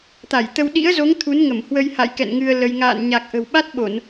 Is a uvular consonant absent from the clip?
yes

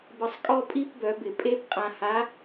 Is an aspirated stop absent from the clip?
yes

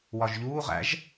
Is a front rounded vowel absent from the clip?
yes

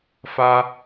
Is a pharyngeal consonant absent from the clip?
yes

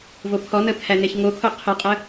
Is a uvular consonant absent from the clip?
no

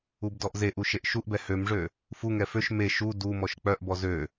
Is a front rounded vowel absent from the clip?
no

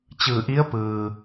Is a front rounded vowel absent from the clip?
yes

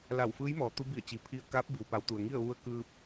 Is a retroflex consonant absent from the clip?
yes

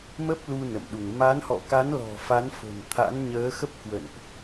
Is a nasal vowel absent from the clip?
yes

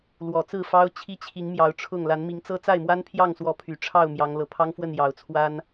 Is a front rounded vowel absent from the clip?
no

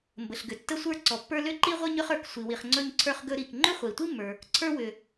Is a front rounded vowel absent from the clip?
no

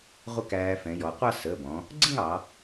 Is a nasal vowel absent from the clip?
no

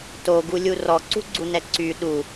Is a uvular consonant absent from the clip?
yes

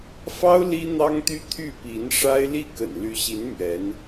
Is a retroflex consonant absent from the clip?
no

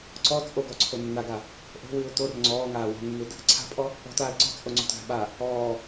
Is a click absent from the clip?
no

